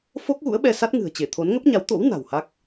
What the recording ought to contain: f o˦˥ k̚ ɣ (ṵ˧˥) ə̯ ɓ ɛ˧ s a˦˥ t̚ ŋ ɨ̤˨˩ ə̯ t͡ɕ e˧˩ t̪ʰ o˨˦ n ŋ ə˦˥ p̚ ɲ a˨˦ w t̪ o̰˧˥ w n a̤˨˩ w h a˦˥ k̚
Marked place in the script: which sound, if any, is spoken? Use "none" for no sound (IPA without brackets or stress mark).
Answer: ṵ˧˥